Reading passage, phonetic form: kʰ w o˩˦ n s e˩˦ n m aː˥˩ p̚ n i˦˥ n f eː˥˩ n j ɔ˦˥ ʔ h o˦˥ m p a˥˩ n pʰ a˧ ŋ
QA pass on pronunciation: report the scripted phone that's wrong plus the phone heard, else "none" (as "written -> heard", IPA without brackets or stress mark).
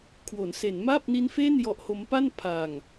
none